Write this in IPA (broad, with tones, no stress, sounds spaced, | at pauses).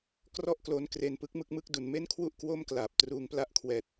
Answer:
k r ɔ˥˩ ʔ k l o˦˥ n k r e˧ n p ɯ˦˥ k̚ m ɯ˥˩ k̚ m ɯ˥˩ k̚ d u˩˦ n m e˥˩ n kʰ w u˥˩ ʔ k w o˥˩ m k l aː˨˩ p̚ t r uː˧ ŋ p l a˥˩ ʔ kʰ w ɛː˨˩ t̚